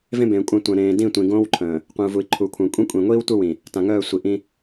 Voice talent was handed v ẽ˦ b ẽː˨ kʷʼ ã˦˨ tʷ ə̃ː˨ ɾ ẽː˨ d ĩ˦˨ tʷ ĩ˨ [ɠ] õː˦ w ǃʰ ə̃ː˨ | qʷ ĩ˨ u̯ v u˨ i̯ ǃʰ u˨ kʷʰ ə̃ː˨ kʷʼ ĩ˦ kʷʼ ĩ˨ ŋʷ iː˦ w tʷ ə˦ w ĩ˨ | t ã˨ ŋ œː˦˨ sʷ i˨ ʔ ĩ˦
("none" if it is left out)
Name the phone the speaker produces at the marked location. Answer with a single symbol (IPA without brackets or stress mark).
ɡ